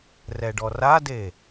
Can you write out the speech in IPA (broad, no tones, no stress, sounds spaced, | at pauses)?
r ɛ ɖ ɔ r a d e